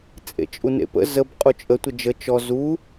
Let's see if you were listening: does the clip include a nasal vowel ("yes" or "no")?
no